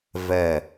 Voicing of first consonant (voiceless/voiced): voiced